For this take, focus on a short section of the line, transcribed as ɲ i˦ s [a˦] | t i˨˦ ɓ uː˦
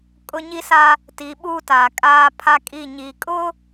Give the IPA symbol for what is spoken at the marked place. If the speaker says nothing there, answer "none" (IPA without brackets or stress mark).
a˦